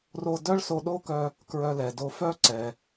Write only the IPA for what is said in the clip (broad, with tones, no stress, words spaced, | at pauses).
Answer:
ro˧dœ˥ɭ so˧ɗo˥kœ˧ | kɹœ˧lɛ˩do˧ fœ˥ǀɛ˩